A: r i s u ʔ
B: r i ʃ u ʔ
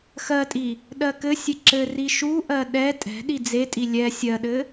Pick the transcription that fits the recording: B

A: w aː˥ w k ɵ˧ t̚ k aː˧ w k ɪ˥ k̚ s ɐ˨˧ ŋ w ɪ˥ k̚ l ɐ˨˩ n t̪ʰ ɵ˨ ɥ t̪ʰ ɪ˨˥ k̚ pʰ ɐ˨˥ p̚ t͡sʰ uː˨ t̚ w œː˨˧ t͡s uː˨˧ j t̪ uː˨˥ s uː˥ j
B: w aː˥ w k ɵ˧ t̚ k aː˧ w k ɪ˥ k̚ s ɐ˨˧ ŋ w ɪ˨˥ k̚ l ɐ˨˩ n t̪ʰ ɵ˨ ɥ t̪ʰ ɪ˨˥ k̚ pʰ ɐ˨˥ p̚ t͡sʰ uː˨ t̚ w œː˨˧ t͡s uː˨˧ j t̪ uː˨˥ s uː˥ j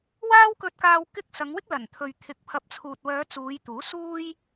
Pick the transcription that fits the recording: A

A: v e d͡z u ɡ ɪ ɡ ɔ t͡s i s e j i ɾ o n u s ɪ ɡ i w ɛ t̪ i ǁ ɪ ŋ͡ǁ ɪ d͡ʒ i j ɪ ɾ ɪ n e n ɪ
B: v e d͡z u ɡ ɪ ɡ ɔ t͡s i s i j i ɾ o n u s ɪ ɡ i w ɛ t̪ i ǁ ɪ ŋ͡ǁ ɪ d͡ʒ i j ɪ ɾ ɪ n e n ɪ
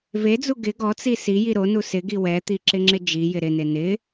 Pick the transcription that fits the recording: B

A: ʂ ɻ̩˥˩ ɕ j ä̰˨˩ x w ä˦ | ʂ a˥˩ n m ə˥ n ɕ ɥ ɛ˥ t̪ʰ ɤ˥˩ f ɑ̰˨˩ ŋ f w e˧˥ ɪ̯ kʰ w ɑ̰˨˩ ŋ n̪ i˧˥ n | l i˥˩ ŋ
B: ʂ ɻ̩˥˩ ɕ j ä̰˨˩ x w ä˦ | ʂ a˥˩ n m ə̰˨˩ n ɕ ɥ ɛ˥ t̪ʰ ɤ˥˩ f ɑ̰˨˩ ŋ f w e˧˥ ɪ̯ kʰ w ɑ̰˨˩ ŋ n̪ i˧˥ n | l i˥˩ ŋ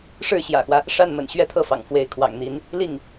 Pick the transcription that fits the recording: B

